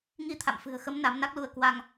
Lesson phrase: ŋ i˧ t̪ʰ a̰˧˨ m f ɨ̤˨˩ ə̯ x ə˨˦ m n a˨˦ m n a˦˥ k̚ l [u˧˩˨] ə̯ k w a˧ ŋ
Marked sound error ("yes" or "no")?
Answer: yes